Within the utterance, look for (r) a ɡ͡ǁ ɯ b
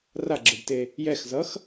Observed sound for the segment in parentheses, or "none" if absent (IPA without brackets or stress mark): r